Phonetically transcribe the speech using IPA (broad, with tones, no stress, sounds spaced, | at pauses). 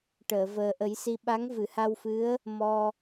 ʈ əː˨˩˨ v əː˨˩ ʔ ə˨˩˦ j s i˧ ɓ a˧˥ ŋ v ɨ˨˩˨ h a˧ w f ɨ˧˥ ə̯ | m ɔ˧